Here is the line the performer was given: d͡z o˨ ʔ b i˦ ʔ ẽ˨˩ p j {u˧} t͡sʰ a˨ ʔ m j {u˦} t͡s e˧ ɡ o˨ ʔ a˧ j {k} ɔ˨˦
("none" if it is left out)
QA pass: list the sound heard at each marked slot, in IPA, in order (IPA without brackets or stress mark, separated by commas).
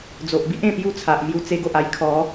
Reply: u˥˧, u˧, kʰ